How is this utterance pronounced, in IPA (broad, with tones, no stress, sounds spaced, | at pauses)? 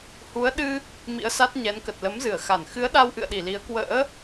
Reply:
h u˨˦ ə̯ ɗ ɨ˧ | m ḭ˧˥ ə̯ s a˦˥ t̚ ɲ ɛ˨˦ n k ə˨˩ t̚ l ə˨˦ m z ɨ˧˩ ə̯ x a˧˩ n x ɨ˨˦ ə̯ ɗ a˧ w ʔ ɨ̰˧˨ ə̯ ɗ i˧˩ l i˨˦ ə̯ k w ə̰ː˧˥